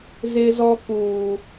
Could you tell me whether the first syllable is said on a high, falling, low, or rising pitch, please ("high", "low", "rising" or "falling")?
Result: high